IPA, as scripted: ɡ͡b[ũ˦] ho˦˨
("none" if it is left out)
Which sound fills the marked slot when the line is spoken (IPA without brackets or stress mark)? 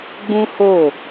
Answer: ũ˦